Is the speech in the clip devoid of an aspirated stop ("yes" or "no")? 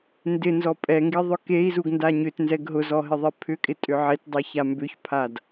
no